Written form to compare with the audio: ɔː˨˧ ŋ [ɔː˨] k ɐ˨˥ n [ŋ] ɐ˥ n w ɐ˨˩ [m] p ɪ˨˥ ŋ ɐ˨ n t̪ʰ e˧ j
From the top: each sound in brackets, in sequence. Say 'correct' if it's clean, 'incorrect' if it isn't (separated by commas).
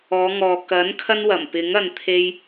correct, incorrect, correct